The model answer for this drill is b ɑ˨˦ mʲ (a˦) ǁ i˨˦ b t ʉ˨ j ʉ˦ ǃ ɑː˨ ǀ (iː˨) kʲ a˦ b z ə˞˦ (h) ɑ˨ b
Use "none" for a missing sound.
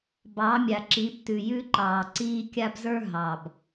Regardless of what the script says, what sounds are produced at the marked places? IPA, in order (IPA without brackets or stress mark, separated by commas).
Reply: a˨, iː˦, ɦ